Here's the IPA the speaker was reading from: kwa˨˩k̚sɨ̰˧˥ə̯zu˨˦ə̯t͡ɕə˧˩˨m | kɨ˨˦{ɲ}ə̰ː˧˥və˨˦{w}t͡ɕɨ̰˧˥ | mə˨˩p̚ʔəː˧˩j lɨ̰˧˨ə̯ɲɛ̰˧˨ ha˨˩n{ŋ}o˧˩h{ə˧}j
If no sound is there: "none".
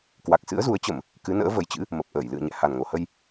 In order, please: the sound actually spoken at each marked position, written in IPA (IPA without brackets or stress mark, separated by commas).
n, j, ŋ, ə˧